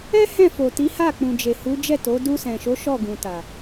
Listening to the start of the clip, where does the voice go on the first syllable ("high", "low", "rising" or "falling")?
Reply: high